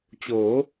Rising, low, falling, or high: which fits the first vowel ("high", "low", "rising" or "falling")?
rising